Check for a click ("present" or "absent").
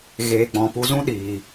absent